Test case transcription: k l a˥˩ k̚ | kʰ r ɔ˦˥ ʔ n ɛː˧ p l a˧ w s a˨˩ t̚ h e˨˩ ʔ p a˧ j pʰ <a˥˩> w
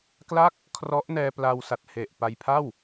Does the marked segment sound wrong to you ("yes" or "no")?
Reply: no